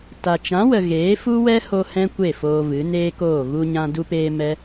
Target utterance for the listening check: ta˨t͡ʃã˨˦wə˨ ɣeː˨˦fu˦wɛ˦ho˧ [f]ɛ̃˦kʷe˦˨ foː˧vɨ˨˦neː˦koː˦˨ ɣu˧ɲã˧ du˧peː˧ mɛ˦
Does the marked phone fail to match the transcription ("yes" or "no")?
yes